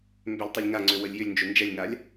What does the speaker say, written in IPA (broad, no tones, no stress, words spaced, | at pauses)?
mbʏlʲtˤɪlʲ ŋaŋ͡ǀø wəlʲjʏlʲnd͡ʒʏ nd͡ʒɛlʲŋalʲ